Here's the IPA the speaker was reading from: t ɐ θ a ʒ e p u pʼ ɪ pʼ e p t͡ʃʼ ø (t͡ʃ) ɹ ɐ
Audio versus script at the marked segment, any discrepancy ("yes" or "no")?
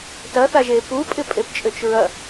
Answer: no